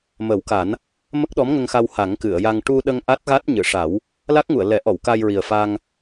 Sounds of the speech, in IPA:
m ə˨˩˦ w k a˨˩˦ n | m ə˦˥ k̚ ɗ ɔ˧˥ m ŋ ə˧ ŋ x a˧ w h a˨˩˦ ŋ k ɨ˨˩˨ ə̯ j a˧ ŋ ʈ u˧ ɗ ə˧ ŋ ʔ a˦˥ t̚ ɣ a˦˥ t̚ ɲ ɨ˨˩˨ ʂ a˨˩˦ w | l a˦˥ k̚ ŋ u˨˩˨ ə̯ l ɛ˨˩˦ ʔ ɔ˨˩˨ w k a˧ j ɹ i˨˩ ə̯ f a˧ ŋ

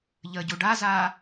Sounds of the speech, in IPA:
ʎ ə ɟ u ɖ a z a

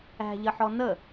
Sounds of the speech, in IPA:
æ̤ ʎ ə ħ ɔ n ə

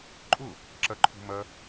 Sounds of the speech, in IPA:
ǃʼ ʊ | ǁ ɐ ǃʰ ṳ m ɐ

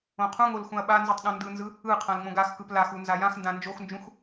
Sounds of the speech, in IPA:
õ qʰ ũ ŋ o l x ũ ɐ̯ ɓ a n z ɯ tˤ ɗ õ n d ɯ n z ɯ | ɯ qʰ ã l ŋ͡m õ ɡ a x k ɯ p l a x u n z a j ã x n d ã n d͡ʒ o x n d͡ʒ ũ x

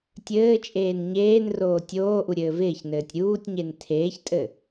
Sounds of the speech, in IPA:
tʲ ɘː t͡ʃʼ eː n ɲ eː n r oː tʲ oː ʔ u ɾʲ ɘː v ɪː ç n ɘː tʲ ɾʲ uː tʲ ɲ e n tʰ eː ç tʼ ɘ

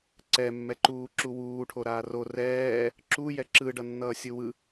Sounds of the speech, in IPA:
ǀ ɛ mː ɛ ǃ uː ǁ u w uː ʈʰ o ɾ aː r o r ɛː | ǁ u j ɛ ǁ ɯ ɖ ʌ nː ʌː sʲ ɯ w ɯ

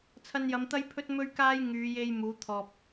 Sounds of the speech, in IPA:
t͡sʰ ɐ˧ n j ɐ˨˧ m t̪ ɐ˥ j pʰ ɵ˥ t̚ m ɵ˥ ɥ k aː˥ j ŋ yː˨˧ j e˧ j m uː˨˥ t̪ʰ ɔː˧ p̚

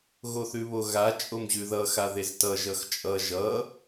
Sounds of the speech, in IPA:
ɣ o θ ʉ β o ɣ a t͡ʃʼ o m ʑ ʉ ð ʌ x a ð e z t ʌ ʒ ʌ x t͡ʃʼ ʌ ʒ ʌ

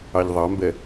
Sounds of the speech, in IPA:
ɑ ʎ ðˤ ɑ m b ɛ

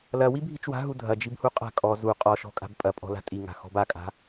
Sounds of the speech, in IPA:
l ɐ w i bʱ i t͡ʃ w a̤ ɦ u dʱ ɐ d͡ʒ i b h u qʼ a̤ kʼ ɔ z u qʼ ɔ ʃ ɔ̤ kʼ a̤ b pʼ ɐ pʼ ɔ̤ l a̤ tʼ i ŋ a̤ x ɔ̤ b a kʼ a̤

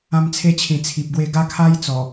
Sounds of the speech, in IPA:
ã˧ m t͡sʰ e˧ t͡ɕʰ ĩ˨˩ t͡sʰ i˨ p̚ ɡ w e˧ ɡ a˦ kʰ a˦ j t͡s ɔ˨˩

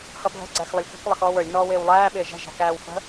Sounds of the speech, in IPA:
h ʌ bʱ ə̤ ɡ͡ǀ æ x lˠ ə lʲ k ə̤ k lˠ ə x ɔː w ə˞ lʲ n ɔː w ɪː w lˠ æː ɓ ɪː ʒ ɛ̤ ʒ æ̤ k æː w f ə̤

